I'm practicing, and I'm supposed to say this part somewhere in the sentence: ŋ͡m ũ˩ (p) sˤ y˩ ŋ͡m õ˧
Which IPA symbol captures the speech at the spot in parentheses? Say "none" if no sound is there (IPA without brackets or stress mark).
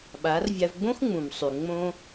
m